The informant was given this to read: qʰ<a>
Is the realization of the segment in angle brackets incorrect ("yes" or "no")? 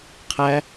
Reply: yes